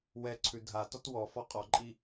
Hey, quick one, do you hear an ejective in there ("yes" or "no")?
yes